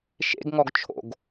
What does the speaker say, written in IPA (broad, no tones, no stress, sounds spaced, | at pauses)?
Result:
ʃ ḛ ɡ ŋ ɔ ɡ t͡ʃʰ o̰ ɡ